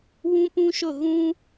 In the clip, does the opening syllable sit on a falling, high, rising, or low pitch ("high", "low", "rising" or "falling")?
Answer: high